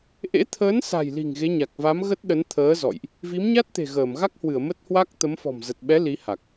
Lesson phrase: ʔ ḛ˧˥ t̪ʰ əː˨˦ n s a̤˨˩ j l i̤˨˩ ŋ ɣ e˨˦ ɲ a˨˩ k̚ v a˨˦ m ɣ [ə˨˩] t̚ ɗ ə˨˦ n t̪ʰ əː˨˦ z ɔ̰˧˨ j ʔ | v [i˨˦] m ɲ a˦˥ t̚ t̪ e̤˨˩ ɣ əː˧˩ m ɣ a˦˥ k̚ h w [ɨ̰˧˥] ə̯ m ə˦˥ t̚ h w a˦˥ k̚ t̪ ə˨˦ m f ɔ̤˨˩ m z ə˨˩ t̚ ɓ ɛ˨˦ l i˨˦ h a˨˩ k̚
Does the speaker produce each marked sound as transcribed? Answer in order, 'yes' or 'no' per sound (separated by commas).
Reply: no, yes, no